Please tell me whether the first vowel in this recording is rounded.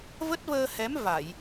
no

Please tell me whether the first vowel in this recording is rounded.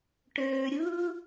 yes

